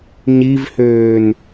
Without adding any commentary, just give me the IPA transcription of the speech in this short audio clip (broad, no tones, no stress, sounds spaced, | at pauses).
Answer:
ɲ i v h øː n